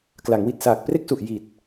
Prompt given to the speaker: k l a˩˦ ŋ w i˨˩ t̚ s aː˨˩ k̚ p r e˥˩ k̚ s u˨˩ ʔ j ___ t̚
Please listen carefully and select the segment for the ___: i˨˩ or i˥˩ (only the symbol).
i˨˩